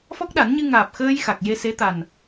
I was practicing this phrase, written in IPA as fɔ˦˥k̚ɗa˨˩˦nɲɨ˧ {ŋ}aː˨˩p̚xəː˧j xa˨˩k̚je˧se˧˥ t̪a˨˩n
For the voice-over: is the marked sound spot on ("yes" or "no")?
yes